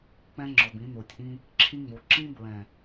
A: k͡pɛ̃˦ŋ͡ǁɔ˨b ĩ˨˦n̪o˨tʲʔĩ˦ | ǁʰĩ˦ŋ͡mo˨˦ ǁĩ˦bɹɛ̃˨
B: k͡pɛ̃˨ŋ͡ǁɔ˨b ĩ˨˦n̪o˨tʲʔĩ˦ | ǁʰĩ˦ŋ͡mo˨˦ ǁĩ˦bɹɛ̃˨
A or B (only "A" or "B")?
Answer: A